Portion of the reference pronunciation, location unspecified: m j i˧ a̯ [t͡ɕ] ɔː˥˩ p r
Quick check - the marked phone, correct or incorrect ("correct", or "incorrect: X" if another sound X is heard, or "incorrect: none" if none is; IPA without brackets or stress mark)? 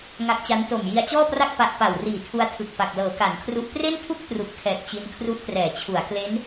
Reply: correct